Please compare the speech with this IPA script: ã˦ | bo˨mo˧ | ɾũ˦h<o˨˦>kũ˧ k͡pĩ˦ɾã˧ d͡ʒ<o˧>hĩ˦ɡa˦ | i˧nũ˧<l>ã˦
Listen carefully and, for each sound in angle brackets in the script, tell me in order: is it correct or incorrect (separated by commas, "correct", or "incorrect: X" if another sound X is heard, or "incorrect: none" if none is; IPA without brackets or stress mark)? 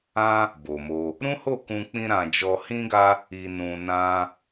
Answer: incorrect: o˦˨, incorrect: ɔ˧, incorrect: n